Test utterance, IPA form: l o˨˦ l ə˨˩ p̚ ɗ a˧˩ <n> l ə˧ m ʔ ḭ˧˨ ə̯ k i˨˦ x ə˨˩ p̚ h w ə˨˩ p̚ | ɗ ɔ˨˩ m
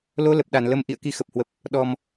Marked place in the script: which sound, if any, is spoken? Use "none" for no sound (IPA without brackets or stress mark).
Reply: n